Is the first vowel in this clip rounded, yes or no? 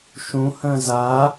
yes